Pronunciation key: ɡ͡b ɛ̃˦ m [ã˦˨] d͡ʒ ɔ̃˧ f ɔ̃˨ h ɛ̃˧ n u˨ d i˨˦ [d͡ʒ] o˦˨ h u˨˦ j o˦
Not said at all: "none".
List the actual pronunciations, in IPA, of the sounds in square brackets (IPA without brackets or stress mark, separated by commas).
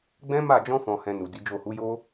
a˦˨, d͡ʒ